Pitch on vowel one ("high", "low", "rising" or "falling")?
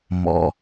low